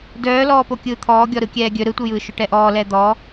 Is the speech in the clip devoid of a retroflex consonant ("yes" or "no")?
no